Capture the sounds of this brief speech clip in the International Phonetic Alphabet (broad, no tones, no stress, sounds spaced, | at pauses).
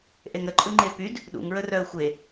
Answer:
ʔ e ŋ ɾ ə ǃʼ ɯ ŋ͡ǃ e p y d | ɗ ṵ ŋ ɹ ə r œ ə̯ xʷ e